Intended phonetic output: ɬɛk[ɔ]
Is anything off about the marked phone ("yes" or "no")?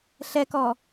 no